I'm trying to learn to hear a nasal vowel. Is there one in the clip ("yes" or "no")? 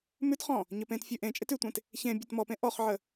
yes